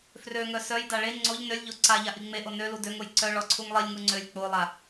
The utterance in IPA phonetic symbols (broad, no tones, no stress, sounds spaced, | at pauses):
f r ø ŋ œ s œ j d a ɭ e ŋ͡ǀ o ʎ n ø lʲ ʎ o ǀ a ʎ a ʔ i ŋ͡m e ʔ o n ø l u d ø ŋ o j ǀ œ ɭ ɔ ǀʰ u ŋ lˠ i lʲ ŋ u ŋ͡ǀ ø lʲ k͡p o lˠ a